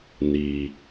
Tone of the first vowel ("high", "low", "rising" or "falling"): low